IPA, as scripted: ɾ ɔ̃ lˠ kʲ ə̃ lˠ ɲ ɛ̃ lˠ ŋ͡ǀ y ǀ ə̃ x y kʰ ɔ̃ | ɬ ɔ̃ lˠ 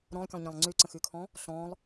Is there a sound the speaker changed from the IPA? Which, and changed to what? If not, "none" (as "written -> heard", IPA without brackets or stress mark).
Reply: none